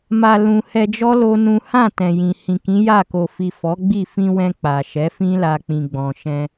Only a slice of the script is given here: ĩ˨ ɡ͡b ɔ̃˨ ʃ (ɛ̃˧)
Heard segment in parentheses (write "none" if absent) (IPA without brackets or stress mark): ɛ̃˧